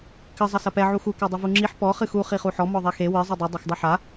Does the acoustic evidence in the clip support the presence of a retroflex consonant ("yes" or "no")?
no